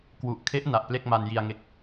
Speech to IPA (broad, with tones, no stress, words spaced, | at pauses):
kwu˨˩ʔkʰe˦˥ʔ na˨˩ʔple˥˩k̚ ma˧nji˧a̯ŋe˦˥k̚